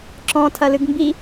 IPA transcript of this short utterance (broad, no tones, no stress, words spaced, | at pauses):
ǁɔ̃ tʰɐlɨɡmbi